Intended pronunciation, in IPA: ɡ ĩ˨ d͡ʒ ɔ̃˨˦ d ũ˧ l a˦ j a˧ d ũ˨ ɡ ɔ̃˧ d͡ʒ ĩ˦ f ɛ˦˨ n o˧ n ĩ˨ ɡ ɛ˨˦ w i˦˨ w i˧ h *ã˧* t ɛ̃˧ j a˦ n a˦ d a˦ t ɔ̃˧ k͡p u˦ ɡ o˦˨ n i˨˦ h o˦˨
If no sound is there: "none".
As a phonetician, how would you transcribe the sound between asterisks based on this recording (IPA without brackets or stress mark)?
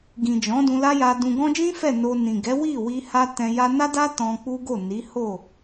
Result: a˧